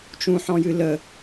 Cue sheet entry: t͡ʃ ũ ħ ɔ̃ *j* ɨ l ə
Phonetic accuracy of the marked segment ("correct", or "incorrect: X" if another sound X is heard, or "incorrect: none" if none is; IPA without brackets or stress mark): correct